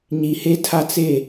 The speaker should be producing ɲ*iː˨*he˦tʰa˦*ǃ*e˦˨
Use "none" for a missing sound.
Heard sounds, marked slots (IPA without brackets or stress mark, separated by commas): i˨, t͡s